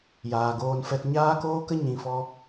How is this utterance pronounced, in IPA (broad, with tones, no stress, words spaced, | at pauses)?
jaː˨ɡoː˧nfɛ˧t ɲaː˦koː˦kə˦ ɲĩ˨fɔ˧